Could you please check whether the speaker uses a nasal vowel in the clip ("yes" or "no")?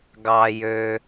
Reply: no